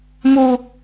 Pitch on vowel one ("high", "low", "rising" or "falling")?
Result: high